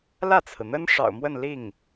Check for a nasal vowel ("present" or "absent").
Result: absent